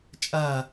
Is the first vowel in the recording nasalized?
no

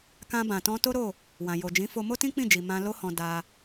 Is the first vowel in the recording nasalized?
yes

